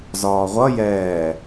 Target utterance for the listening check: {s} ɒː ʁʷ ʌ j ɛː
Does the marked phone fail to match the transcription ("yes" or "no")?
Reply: yes